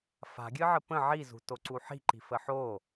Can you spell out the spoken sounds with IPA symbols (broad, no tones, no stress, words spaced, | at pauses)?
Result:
fa̤ɡʲɨʕə pə̃ ʕizṳtoǀu ħi̤ǃi̤fə ħo